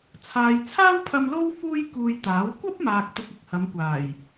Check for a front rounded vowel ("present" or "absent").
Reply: absent